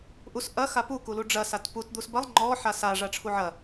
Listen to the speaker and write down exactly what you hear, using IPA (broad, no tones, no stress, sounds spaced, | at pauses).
ʔ u s ʔ ɐ x a p u k u l u ɖ͡ʐ ɐ s a t p u t d̪ u s b ɐ lˠ ŋ͡ǃ ɔ ħ a s a ʐ a ʈ͡ʂʰ u ʕ ɐ